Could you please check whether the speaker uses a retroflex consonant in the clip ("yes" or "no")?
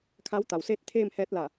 no